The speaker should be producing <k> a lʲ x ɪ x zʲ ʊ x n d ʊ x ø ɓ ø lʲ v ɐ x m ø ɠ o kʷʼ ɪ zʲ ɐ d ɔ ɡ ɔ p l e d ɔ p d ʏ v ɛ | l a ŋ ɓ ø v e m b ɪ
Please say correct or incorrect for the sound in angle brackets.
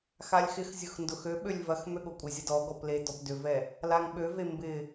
incorrect: x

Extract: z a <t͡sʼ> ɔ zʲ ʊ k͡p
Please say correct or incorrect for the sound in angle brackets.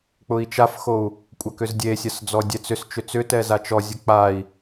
incorrect: t͡ʃ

